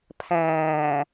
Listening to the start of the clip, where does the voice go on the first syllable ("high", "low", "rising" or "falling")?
low